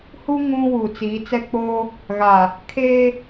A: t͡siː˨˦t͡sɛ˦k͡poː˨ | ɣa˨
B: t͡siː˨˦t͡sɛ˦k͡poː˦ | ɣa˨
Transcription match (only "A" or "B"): B